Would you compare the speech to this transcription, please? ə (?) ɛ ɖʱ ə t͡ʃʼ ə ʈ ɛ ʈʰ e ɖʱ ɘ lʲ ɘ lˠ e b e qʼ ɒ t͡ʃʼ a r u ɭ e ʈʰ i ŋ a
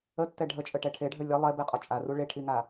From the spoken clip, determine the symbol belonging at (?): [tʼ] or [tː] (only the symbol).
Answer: tː